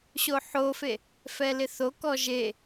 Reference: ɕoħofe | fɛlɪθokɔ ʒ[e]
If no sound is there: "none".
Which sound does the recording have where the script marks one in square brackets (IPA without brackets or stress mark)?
e